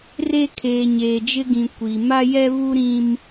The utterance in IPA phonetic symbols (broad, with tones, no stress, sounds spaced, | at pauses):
r e˦ kʰ eː˨ ɲ eː˨ d͡ʒ ɪ˦ ɡ ĩ˨ kʷ i˨ m a˦ j ɛ˦ β u˦ ɾ ĩ˦ m